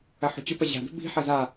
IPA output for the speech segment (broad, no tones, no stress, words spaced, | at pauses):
ɐħo̤t͡ɕɵpɐ ʑa̤dṳ bi̤ħɐ za